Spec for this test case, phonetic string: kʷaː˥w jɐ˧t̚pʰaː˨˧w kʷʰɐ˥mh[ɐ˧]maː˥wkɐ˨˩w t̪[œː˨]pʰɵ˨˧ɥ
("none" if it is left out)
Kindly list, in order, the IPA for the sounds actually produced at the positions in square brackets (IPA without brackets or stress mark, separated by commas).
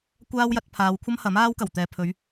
ɐ˨˥, ɛː˨